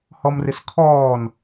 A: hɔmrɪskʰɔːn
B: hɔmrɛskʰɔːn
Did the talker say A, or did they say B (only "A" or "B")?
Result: A